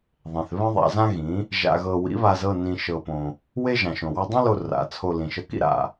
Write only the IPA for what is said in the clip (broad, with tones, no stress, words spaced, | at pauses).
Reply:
ðˤẽ˨θβɛ̃˦ ðˤa̰˧zã˦ɣĩ˨˦ | ʒa̰˧ɣɤ˧ wḭ˨˦βa˧zɤ˦˨ nĩ˧ʃɤ˧põ˧ | we˦ʒã˨ʃõ˨ wa˧dˤõ˦lo˧ ra̰˨˦ t͡sʰo˧lĩ˨ʃɤ˧kḭ˦ ɾa̰˧